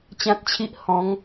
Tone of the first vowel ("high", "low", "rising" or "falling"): high